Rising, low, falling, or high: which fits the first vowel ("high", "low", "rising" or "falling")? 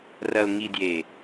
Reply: low